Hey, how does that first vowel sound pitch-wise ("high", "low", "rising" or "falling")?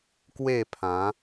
falling